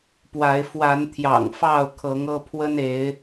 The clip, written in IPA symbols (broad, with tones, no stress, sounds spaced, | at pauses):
p w a˨˦ ɪ̯ f w a˨˦ n t̪ʰ j ɑ̰˨˩ ŋ f ɑ˥˨ ʊ̯ kʰ ɤ˨˦ ŋ ɤ˦ pʰ w ə˦ n e˨˦ ɪ̯